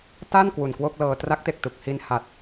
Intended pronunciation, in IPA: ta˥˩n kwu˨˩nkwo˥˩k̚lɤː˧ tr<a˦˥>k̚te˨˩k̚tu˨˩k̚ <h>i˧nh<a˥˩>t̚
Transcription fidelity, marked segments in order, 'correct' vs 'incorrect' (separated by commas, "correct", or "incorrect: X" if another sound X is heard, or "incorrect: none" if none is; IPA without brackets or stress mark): correct, correct, incorrect: a˨˩